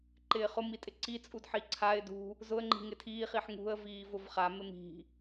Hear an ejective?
yes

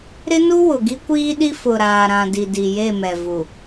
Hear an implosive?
yes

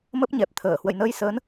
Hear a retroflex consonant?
no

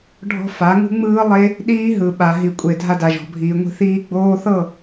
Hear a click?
no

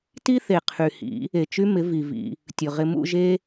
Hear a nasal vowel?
no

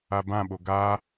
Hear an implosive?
yes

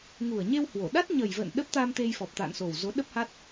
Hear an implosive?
yes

